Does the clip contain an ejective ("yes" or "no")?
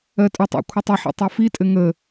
yes